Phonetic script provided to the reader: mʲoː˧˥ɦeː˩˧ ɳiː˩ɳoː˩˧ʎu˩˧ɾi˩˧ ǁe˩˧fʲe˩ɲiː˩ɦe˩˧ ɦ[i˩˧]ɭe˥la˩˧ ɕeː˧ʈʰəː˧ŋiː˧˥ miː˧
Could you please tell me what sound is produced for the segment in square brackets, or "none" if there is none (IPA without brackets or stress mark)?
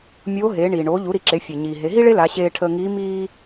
i˥